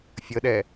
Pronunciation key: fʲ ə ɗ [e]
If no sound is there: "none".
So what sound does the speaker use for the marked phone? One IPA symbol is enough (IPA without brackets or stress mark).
ɛ